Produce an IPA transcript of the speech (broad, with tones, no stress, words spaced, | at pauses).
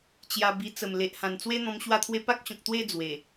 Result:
t͡ɕja˧bi˧ t͡sə˨˩mle˨ʔhã˨˩n t͡swe˦n̪ɔ̃˧m ɕwa˥˧t̪ʰwe˦ pa˦k̚ɕɔ̃˨k̚t̪we˥˧ d͡zwe˨˩